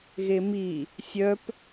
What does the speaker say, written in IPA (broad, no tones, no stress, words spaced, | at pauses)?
ɣemi | sʲœp